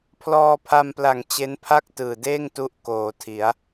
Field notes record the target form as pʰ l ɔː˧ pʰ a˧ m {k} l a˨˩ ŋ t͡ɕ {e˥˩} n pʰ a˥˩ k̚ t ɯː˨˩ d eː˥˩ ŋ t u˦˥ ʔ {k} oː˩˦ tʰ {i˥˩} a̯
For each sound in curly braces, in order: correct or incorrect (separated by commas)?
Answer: incorrect, incorrect, correct, incorrect